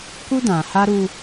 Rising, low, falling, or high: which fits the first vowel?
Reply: high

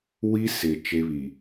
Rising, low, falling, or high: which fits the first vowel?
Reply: high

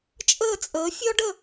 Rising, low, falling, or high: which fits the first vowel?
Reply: falling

